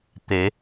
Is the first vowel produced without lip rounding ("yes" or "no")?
yes